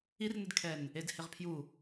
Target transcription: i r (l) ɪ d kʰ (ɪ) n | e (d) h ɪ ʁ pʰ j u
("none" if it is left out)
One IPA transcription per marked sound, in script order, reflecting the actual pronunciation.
n, ɛ, d

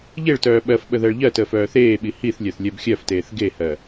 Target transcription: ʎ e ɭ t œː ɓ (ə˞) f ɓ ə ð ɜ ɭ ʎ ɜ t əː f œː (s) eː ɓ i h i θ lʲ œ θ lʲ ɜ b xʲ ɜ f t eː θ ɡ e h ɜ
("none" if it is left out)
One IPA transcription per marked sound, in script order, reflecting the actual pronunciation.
ɜ, θ

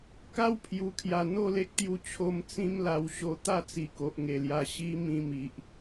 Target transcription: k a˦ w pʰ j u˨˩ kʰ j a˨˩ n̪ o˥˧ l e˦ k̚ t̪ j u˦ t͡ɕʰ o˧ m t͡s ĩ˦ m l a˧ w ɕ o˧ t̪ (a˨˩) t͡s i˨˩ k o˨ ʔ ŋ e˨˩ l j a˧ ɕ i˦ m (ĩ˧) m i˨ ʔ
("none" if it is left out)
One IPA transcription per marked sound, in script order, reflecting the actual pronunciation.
a˥˧, ĩ˧

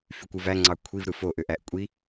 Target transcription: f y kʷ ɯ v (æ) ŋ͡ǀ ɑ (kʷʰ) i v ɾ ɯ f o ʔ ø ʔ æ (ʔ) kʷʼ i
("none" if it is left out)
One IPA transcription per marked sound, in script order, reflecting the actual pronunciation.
æ, kʷʰ, ʔ

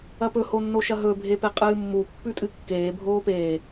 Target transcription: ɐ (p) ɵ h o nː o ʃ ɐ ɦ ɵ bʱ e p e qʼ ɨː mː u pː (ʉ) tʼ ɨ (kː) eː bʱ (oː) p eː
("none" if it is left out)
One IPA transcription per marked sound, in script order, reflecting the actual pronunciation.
p, ʉ, kː, oː

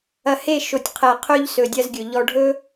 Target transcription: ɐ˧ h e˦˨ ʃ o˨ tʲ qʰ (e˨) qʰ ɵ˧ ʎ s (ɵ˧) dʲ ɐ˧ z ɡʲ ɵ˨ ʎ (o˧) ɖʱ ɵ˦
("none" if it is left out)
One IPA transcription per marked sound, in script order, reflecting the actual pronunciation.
ɛ˨, ɵ˨, ɔ˧

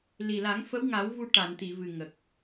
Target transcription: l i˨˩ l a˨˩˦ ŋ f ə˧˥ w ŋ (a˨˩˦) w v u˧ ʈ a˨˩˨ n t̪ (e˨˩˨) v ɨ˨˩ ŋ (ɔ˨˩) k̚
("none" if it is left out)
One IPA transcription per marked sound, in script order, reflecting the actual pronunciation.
a˨˩˦, i˨˩˨, ə˨˩

